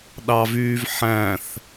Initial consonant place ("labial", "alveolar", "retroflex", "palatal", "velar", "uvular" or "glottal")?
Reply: alveolar